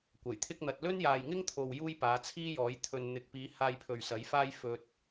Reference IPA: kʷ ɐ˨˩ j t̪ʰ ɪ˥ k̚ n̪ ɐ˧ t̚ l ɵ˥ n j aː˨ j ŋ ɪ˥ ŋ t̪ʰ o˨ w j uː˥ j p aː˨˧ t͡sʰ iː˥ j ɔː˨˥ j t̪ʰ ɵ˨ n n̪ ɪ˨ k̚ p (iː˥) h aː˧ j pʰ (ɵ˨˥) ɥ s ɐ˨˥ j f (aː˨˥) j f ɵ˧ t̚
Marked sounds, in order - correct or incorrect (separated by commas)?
incorrect, incorrect, incorrect